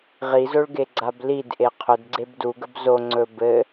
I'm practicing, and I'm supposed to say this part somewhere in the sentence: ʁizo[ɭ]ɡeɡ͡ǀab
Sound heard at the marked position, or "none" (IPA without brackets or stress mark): ɭ